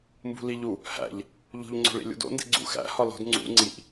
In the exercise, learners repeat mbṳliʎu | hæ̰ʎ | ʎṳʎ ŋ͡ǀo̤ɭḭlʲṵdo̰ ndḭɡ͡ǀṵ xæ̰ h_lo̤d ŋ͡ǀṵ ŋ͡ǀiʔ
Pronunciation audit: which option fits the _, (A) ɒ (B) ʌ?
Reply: A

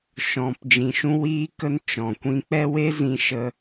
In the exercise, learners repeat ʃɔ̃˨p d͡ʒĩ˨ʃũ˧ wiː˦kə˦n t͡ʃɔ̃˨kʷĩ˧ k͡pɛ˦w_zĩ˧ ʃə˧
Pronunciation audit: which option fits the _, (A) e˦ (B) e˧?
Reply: A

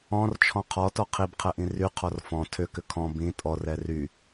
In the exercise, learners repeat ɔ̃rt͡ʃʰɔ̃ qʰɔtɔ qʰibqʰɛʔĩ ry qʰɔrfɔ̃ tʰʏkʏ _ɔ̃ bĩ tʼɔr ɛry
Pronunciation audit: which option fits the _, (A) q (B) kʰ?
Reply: B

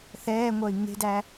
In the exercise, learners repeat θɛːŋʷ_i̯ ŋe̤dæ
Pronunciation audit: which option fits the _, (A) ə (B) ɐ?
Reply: B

